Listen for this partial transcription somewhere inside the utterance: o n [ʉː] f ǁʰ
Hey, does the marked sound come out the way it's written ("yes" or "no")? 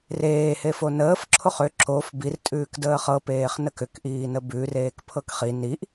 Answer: no